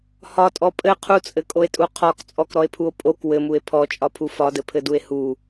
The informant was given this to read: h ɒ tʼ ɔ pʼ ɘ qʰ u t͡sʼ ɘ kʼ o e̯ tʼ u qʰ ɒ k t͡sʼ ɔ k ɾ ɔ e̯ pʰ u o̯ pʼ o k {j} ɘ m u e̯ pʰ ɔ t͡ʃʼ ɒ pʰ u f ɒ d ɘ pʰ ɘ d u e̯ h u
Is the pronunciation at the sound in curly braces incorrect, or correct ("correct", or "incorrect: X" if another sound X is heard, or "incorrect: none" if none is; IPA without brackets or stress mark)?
incorrect: w